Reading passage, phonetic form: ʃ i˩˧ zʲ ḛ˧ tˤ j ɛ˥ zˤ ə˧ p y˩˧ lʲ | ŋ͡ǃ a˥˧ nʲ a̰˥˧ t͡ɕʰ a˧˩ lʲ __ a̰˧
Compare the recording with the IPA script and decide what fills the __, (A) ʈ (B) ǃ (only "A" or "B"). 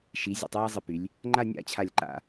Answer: B